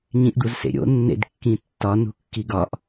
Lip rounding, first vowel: unrounded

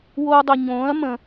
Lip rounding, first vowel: rounded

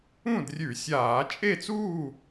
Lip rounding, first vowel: rounded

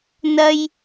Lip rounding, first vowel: unrounded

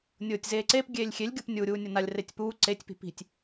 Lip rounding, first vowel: rounded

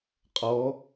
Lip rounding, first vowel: rounded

